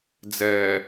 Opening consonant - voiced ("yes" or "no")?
yes